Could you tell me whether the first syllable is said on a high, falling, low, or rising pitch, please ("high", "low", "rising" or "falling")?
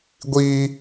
high